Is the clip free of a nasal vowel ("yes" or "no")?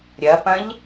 no